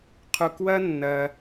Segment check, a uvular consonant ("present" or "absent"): present